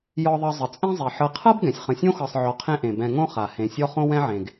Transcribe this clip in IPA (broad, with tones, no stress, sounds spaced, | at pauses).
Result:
j ɔ˨ ðˤ ɤ˨ zˤ ə˩ t͡sʼ ẽ˦ zˤ e˩ ħ ɤ˨ qʰ ɤ˥ b ɡ ɛ̃˩ sʲ χ ə̃˨ sʲ õ˥ x ɤ˨ sˤ ʕ ɔ˨ qʰ ẽ˦ ʔ ẽ˩ b ɛ̃˨ ŋ õ˥ χ a˩ h ẽ˨ sʲ ɔ˥ χ õ˥ w ɛ̃˥ ʕ ẽ˩ ɡ